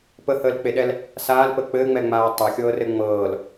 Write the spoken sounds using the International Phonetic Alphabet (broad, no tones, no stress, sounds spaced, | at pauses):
p ə h əː l k͡p e ɗ ɛ l | s aː l p ə k͡p ɘː ŋ͡m ɛ ŋ͡m aː tˤ a xʲ ɤː r ɘ ŋ͡m ɤː l